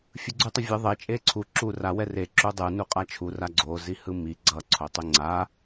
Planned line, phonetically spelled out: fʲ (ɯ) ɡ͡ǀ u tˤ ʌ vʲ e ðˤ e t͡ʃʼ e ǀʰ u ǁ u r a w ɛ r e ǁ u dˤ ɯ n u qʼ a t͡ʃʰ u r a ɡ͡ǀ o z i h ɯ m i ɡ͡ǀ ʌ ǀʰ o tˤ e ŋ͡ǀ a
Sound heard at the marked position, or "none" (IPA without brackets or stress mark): ɯ